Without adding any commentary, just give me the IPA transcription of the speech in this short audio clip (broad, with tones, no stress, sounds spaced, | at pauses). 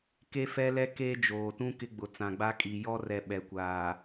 k e˦ f ɛ˦ l ɛ˦ k eː˦ d͡ʒ oː˨ t ũ˦ k ɪ˦ ɡ͡b ʊ˨ t͡s ã˨ ɡ͡b a˦ kʼ i˨ j ɔ˦ r ɛ˨ ɓ ɛ˨ kʷ aː˨